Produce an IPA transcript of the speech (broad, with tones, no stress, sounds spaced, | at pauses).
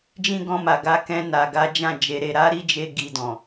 d͡ʒ ĩ˦ ɡ ɔ̃˧ m a˨ ɡ a˧ k ɛ̃˧ n a˨ ɡ a˨˦ d͡ʒ ã˦˨ d͡ʒ e˧ ɾ e˧ ɾ a˦ ɾ i˦ d͡ʒ e˧ ɡ i˧ d ɔ̃˨